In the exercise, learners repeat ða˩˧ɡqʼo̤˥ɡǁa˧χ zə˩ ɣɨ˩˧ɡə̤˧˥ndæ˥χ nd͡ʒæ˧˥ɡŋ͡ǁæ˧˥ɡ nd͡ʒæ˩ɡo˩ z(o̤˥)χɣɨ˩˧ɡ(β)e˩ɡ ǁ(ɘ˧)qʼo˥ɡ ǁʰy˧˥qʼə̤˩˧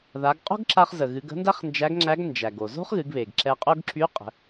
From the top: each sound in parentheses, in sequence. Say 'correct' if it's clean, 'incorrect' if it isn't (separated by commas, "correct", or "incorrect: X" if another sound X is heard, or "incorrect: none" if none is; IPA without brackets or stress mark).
correct, correct, incorrect: ɛ˧